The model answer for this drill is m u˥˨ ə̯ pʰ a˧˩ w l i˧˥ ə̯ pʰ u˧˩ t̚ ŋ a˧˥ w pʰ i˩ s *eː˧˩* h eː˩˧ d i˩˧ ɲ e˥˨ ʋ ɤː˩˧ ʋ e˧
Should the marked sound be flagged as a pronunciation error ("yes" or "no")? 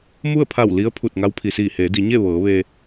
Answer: yes